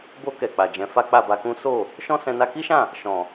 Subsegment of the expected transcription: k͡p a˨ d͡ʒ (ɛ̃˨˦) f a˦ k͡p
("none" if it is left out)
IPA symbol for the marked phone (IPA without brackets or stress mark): ɛ̃˨˦